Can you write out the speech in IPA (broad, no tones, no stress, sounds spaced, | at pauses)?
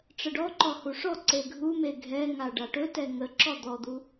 ʈ͡ʂ ə ɖ ɔ ǃ ɔ h u ʂ ɔ ǀ e ɡʱ u m e ɡʱ ɛ ŋ a ɖ a ʈ ɵ t ɛ ŋ ə ǁ ɔ d̪ ɔ d̪ u